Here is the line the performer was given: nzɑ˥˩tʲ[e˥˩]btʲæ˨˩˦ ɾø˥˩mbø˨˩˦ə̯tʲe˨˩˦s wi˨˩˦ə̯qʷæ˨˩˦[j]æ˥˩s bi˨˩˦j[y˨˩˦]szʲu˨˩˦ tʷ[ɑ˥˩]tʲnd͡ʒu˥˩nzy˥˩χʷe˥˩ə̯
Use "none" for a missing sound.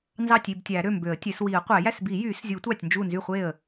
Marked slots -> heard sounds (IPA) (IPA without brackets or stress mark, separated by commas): i˥˩, j, y˨˩˦, ɑ˥˩